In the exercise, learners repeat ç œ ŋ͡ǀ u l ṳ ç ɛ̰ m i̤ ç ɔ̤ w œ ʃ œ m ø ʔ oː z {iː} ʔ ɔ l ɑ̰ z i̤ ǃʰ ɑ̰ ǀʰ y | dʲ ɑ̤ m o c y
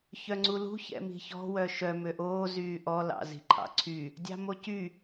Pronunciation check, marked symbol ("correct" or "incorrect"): incorrect